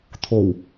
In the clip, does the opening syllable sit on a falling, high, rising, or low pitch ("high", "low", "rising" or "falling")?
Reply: low